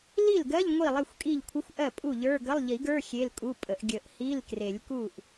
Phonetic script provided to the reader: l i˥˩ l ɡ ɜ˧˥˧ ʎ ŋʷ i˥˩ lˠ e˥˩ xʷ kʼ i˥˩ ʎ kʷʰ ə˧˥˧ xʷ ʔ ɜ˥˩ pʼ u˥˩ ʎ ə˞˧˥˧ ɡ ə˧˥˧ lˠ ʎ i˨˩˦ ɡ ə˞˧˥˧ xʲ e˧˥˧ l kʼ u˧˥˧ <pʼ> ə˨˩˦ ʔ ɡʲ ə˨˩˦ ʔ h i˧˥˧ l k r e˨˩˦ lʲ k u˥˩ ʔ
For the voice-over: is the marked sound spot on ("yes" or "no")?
yes